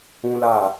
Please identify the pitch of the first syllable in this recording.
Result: high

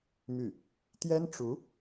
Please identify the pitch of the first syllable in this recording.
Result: falling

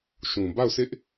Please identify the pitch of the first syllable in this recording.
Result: low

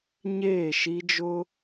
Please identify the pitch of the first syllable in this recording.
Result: falling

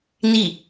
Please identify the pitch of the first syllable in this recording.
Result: falling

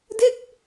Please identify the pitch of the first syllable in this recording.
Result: falling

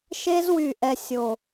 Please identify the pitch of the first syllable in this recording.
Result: high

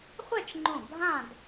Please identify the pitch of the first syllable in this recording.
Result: falling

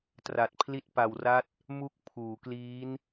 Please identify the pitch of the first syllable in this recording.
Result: low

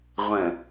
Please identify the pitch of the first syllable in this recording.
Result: low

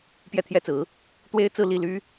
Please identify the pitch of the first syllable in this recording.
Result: falling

